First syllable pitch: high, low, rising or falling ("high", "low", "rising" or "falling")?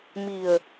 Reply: low